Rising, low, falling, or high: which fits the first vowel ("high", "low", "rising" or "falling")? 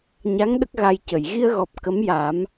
rising